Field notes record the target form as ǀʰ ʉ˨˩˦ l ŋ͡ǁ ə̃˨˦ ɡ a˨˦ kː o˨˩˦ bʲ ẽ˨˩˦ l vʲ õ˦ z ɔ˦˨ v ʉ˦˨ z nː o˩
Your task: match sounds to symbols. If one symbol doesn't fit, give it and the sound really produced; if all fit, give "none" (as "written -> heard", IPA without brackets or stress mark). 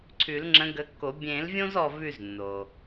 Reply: a˨˦ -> ə˨˦